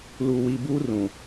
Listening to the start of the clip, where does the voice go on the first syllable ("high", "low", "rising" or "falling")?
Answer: low